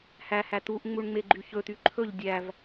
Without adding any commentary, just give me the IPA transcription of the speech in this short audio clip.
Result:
h æ h æ t̪ u ʔ ŋ͡m u ɳ ŋ͡m e ɡ͡ǃ y ç ɵ t̪ y ǃʰ ɵ ʎ dʲ æ v

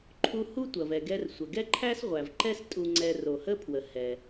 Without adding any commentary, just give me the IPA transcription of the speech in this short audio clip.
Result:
ǃʰ u˧ h u˥ tʷ ɐ˩ v ɛ˩ ɡ ɛ˧ r sʷ ə˩ ɡ ɛ˥ ǃʰ æ˥ s ʁʷ æ˩ v ǃ ɛ˥ s tʼ u˧ ŋ͡ǀ ɛ˧ r o˩ h ə˥ pʰ w ə˩ h ɛ˩

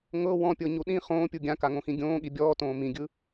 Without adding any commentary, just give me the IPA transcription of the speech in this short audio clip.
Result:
ŋ ɤ w ɔ̃ pʲ ɤ ɲ u ɗ ĩ χ õː pʲ u ɡʲ ã k a ŋ õ x ĩ ɡʲ õː ɠ i bʲ ɔː t õː m ĩ ɡʲ ɯ

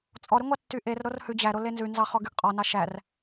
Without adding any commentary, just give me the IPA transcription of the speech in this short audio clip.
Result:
t͡sʼ ɔ ɾ y ŋʷ ɑ tː y ʔ e r ɾ o r h ʉ d͡ʑ æ ɾ o l e n z ʉ n z ɑ χ ɔ ɡ y ɡ qʼ ɔ n ɑ ʃ æ r

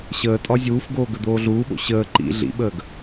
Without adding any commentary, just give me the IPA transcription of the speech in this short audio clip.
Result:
ɕ əː tʼ ɒ zʲ uː f ɡ oː ɡ ə d̪ oː ɮ uː ɓ o̰ ɕ əː ǃ ḭ ɮ ḭ ɓ əː ɡ

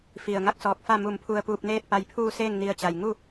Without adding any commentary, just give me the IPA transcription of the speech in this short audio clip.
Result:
f i˩ ə̯ ŋ a˥˨ k̚ s ɔː˧˩ k̚ f a˥˨ m u˧˩ m pʰ u˧ ə̯ p uː˧ p̚ n eː˥˨ t̚ p a˧ j pʰ uː˥˨ s eː˥˨ ŋ n i˧˩ ə̯ t͡ɕ a˩ j ŋ u˥˨

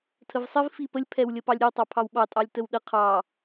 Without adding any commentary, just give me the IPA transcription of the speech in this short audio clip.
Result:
tʰ ə v sˤ ɪ v f i p ə lʲ pʰ ɛ w lʲ ə p ɑ lʲ ɾʲ ə w tˤ ɑ pʰ ɑ w ɓ ɑ tʼ ɑ lʲ t ə w ɗ ə qʰ ɑ

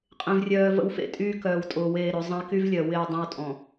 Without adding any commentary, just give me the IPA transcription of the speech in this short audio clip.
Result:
qʼ ẽ˨ v rʲ œː˨ v ə̰˦ w f ḛ˦ tʼ yː˦ k œː˨ w tʼ ʊː˨ w eː˦˨ ɾ ø˨˦ zˤ ə̃˦ e̯ k y˦ v lʲ œ˨ w ɪː˦˨ dˤ ẽ˦ w tʼ ɔ̃˨

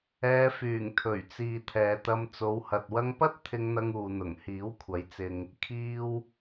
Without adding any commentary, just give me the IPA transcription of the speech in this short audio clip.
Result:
ɛː˨˧ f yː˨˩ ŋ t̪ʰ ɵ˨˩ ɥ t͡s iː˨ t̪ʰ ɛː˨ t̪ ɐ˧ m t͡s o˨˧ w h ɐ˨ t̚ w ɐ˧ ŋ p ɐ˥ t̚ t̪ʰ ɪ˧ ŋ n̪ ɐ˧ ŋ uː˨ n̪ ʊ˨˩ ŋ h iː˨˥ w kʷʰ ɐ˨˧ j t͡s ɪ˨ ŋ | kʰ iː˧ w

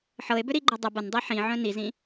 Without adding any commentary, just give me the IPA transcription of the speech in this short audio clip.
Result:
ħ ɤ e̯ b ʏ ɾ i ɡ͡ǃ ə dˤ ə b ə n dˤ i ħ ĩ ʕ œ̃ n i z ĩ

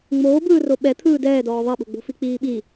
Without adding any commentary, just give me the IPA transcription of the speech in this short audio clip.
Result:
ŋ͡m oː b ɯː r o ɓ ɛ t̪ʰ ɯː d ɛː d ɔː ðˤ ɛ ɓ o̤ ɡ͡b o̤ f i k͡p iː ɓ i

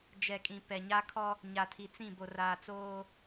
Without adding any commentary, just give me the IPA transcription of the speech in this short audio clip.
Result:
d͡ʒ ɛ˨ kʼ ĩ˨ p ɛ˨ ɲ a˦ kʰ ɔ˦ | ɲ a˨ tʰ i˨ t͡s ĩ˦˨ b o˨ r aː˨ t͡s oː˦

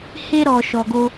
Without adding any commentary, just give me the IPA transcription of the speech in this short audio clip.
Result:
h e˧ ɾ ɔ˨ ʃ ɔ˨ ɡ o˧

